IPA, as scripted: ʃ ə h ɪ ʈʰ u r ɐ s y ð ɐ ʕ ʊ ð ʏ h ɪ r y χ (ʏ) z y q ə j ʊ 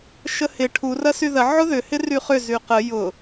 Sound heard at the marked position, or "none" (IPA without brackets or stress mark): ʏ